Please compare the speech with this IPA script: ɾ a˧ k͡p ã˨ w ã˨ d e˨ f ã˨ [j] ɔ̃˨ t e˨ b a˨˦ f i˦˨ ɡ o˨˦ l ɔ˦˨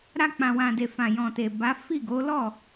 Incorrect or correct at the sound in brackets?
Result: correct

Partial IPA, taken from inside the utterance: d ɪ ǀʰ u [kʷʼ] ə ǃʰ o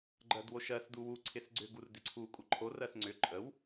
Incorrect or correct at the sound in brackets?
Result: correct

